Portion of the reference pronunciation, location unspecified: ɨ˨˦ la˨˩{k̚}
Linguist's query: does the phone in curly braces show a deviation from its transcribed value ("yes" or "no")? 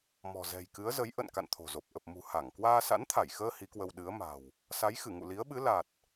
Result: yes